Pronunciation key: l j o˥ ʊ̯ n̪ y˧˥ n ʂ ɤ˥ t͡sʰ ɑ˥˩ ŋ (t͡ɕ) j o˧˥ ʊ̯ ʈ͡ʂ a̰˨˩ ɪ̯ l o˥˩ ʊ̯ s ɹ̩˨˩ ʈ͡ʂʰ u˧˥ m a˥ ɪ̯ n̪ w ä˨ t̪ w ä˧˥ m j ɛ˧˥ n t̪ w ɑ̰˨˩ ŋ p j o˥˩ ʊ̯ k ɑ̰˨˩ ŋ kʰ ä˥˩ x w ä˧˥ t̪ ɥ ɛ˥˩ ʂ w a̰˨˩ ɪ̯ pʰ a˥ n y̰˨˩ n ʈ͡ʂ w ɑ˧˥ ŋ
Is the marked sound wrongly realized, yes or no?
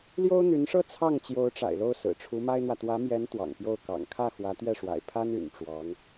no